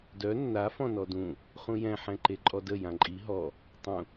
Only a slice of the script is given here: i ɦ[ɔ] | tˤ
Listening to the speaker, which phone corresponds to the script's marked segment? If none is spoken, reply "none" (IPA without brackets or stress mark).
ɔ